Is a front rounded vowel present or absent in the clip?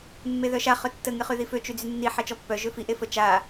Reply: present